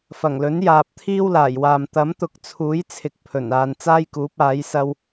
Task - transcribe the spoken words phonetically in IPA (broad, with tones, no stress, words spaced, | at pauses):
fɐ˨˩ŋlɵ˨˥n jaː˨p̚t̪ʰiː˥wlaː˨˩jwaː˨m t̪ɐ˨˥mt̪ʊ˨k̚t͡sʰuː˨˥j t͡sʰɪ˨k̚pʰɵ˨˩n aː˨nt͡saː˥jkuː˨˥p̚aː˨˥j sɐ˧w